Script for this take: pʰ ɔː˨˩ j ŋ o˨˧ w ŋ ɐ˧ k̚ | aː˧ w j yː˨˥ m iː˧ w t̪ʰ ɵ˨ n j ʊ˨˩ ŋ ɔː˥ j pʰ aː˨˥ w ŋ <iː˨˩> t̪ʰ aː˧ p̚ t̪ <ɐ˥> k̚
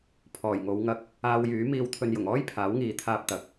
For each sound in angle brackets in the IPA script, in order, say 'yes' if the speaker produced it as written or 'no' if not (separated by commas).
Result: no, no